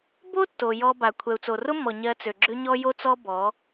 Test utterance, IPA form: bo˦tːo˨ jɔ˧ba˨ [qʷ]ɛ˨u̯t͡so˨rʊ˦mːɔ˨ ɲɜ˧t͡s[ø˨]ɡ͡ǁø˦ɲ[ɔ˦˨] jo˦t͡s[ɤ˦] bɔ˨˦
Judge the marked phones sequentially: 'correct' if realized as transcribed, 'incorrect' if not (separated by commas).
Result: incorrect, correct, incorrect, incorrect